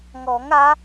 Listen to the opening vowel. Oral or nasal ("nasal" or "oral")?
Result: oral